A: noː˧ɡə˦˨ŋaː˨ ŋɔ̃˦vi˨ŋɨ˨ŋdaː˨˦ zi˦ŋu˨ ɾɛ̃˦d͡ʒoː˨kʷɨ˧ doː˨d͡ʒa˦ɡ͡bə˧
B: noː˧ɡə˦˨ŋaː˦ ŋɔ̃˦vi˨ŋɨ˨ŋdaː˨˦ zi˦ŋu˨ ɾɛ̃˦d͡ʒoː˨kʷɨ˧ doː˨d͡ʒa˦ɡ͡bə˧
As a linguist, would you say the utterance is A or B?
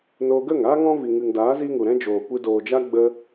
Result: B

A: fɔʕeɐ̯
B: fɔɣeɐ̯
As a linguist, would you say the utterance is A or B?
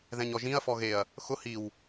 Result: B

